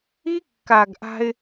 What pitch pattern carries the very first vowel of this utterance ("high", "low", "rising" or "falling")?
high